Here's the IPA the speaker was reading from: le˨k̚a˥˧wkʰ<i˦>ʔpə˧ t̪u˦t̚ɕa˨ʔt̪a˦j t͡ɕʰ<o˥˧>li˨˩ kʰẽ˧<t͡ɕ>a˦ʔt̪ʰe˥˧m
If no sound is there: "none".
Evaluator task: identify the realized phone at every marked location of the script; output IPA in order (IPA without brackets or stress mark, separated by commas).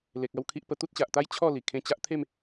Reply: i˦, ɔ˥˧, t͡ɕ